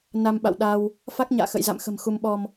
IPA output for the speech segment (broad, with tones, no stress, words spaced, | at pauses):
na˧mɓa̰˧˨wɗa˧w | fa˦˥k̚ ɲa̰ː˧˨ xə̰˧˨jza̰˧˨mxə̤˨˩m xu˧mɓɔ˧m